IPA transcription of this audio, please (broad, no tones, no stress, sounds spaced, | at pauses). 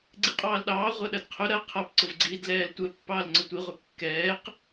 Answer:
ɡ͡ǀ i qʼ ɑː l ɗ ɑː ʁʷ ɐ ɗ ɐ d qʰ ʊ ɾ ɐ qʰ a p ǀ ʊ v ɡ͡ǀ iː d l ɛː l tʷ ɛ pː ɑː l ŋ͡ǀ ʊ tʷ i ʁʷ ɛ kː ɛː q